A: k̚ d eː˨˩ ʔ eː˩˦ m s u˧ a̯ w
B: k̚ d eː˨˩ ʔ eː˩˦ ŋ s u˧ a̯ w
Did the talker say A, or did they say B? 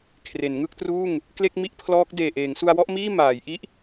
B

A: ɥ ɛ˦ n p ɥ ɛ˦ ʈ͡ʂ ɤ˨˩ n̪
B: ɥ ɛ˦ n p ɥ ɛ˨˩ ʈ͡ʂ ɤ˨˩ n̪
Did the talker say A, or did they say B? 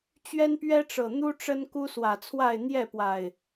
A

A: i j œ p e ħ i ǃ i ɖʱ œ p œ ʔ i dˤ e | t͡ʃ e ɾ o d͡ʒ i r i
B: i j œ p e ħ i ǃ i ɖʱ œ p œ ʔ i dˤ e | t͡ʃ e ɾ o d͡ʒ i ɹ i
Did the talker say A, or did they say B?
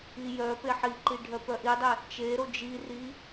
A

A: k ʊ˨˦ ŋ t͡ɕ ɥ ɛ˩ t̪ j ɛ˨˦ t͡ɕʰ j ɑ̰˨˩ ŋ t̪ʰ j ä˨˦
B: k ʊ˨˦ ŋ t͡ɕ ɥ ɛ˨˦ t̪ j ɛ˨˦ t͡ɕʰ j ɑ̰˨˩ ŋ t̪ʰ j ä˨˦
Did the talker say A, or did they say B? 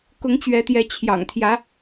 B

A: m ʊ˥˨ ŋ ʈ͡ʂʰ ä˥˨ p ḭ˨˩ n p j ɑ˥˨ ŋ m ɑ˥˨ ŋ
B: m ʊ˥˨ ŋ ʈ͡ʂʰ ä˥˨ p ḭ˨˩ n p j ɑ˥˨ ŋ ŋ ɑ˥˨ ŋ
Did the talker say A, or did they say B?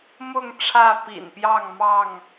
A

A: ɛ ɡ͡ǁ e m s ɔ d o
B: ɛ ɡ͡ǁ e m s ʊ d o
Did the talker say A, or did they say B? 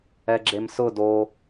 B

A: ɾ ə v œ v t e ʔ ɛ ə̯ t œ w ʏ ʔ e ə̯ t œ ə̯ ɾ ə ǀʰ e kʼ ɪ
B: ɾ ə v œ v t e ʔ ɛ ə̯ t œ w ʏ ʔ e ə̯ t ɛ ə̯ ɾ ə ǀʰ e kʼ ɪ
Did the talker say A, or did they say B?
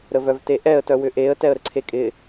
B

